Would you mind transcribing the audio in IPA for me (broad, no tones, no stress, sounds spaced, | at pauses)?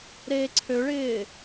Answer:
ɾ eː ǀʰ ø ɭ ɪː